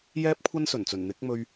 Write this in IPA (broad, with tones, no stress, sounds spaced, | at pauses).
j ɛː˥ p̚ kʷʰ ɐ˥ n s ɵ˨˩ n t͡s ɵ˨˩ n n̪ ɪ˨˥ k̚ m ɵ˧ ɥ